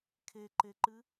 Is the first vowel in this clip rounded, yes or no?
no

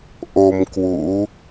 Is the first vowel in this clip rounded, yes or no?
yes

